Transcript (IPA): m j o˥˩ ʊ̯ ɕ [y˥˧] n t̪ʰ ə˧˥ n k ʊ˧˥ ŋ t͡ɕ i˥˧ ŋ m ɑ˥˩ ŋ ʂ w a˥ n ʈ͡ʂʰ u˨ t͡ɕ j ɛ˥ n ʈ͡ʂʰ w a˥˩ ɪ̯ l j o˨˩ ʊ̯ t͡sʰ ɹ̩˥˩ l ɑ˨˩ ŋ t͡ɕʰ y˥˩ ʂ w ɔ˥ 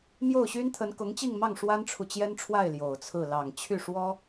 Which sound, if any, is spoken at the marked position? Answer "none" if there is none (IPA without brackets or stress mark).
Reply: y˥